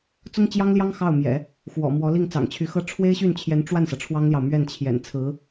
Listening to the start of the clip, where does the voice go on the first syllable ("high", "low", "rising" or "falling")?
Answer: high